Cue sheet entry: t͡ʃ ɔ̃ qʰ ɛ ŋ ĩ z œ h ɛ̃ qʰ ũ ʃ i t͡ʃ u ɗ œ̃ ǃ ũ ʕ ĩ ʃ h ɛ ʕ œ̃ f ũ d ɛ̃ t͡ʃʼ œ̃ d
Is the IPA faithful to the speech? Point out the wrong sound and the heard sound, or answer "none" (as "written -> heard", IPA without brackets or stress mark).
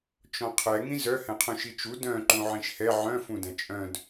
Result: ɗ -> d